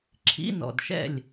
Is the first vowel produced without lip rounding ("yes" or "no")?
yes